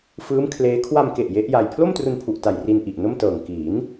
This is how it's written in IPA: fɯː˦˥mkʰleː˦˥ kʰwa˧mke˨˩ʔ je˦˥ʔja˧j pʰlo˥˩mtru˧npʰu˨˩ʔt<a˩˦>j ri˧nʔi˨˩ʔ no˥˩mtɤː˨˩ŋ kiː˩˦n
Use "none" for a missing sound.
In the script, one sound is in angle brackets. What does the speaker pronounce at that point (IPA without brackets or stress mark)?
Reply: a˨˩